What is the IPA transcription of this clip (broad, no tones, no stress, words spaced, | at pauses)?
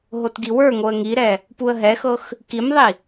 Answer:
ɦotɡiwə˞ŋoə̯ ŋiɾɛ | puə̯ɦɛxɤx | kimðˤi